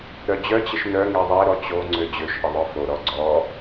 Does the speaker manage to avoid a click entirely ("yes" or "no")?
no